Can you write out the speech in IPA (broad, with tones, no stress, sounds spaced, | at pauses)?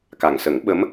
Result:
k a˨˩ ŋ s ə˨˩˦ ŋ ɓ ə˧˥ m